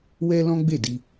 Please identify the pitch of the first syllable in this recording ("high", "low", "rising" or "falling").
high